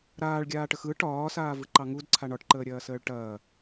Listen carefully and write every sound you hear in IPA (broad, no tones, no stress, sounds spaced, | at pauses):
ɾ aː ɭ ɡʲ aː ʈ ə x ɯ ʈ ɒː s aː v ɯ ǃ ɑ ŋ u d ǀʰ a ɳ ɒ ʈ ǃ əː ɾʲ ɐː s əː ɭ ʈ ɐː